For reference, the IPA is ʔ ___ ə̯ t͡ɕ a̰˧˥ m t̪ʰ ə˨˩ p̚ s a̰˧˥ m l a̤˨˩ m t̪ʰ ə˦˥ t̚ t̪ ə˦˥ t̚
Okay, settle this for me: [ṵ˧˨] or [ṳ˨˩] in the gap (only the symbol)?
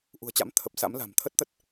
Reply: ṳ˨˩